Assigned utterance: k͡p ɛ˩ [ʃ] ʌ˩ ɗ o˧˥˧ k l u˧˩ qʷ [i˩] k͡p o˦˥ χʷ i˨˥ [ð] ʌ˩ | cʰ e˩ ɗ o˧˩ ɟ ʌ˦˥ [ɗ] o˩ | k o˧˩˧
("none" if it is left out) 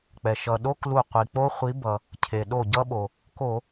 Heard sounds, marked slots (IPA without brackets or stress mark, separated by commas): ʃ, i˩, b, ɓ